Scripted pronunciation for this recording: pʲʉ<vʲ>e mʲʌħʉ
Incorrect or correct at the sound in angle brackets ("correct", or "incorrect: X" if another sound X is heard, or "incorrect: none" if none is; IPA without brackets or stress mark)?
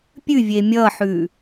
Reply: correct